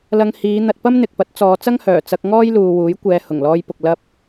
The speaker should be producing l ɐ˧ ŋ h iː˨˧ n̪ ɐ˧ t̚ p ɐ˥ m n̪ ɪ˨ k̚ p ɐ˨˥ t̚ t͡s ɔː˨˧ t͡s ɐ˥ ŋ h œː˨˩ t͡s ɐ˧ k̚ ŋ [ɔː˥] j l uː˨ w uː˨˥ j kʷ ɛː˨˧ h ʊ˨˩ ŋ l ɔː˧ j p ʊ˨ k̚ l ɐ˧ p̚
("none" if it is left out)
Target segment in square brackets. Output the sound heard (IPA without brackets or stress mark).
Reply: ɔː˥